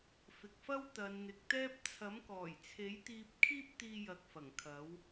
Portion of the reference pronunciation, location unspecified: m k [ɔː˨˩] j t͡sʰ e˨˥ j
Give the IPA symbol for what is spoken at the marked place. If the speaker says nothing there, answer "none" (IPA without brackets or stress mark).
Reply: ɔː˨˩